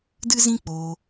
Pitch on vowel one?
high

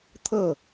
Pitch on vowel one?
falling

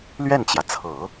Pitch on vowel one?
falling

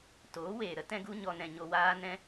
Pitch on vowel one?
rising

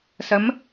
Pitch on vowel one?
rising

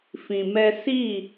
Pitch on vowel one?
low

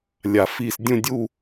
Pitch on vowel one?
low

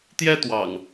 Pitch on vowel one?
high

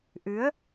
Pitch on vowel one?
rising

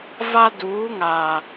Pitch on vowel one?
high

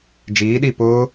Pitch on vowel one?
rising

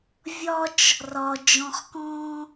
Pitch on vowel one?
high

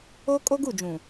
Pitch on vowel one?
high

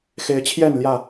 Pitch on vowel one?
rising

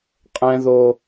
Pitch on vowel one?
high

